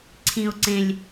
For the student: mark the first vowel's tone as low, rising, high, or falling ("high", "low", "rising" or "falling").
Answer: low